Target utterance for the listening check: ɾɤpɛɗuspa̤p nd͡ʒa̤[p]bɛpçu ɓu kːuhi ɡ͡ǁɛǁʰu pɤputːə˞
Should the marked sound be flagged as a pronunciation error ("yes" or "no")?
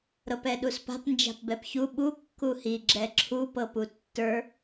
no